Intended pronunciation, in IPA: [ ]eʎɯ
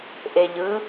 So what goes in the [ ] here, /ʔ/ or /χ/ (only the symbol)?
ʔ